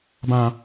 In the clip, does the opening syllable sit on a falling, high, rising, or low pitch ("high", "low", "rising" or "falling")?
low